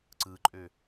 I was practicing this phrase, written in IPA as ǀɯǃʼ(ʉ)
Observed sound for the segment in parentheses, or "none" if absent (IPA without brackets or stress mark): ø